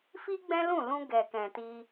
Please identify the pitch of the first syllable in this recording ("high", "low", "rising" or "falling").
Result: high